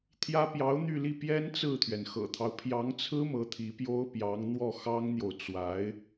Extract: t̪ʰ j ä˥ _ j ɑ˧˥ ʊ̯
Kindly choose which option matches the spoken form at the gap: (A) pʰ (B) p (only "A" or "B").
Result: B